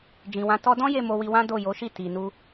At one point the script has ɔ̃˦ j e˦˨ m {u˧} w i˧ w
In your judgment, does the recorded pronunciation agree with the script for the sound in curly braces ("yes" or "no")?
no